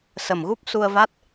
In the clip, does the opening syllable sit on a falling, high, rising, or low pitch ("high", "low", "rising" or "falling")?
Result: low